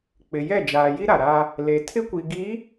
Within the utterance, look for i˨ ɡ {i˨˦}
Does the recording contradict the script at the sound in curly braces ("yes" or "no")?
no